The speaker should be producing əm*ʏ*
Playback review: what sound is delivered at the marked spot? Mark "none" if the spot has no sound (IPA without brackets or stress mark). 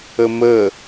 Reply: ə